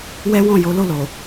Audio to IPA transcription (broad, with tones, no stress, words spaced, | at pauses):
wɛ˦wɔ̃˦˨ jo˨˦lo˦˨lo˨